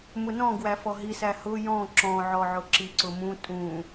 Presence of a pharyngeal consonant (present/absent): present